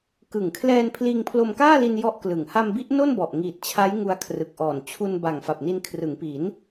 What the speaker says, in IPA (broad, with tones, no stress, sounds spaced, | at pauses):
k ɯ˨˩ ŋ kʰ l ɛː˧ n pʰ l iː˧ ŋ pʰ l o˧ m k aː˥˩ l i˧ n j ɔ˥˩ ʔ k l ɯ˨˩ ŋ h a˧ m b i˦˥ ʔ n o˥˩ n b ɔ˨˩ ʔ ŋ iː˨˩ t̚ t͡ɕʰ a˦˥ j ŋ u˧ a̯ kʰ r ɯ˨˩ k̚ ʔ ɔː˨˩ n t͡ɕʰ u˧ n b a˨˩ ŋ f a˨˩ p̚ n i˧ n kʰ r ɯ˩˦ ŋ p i˩˦ n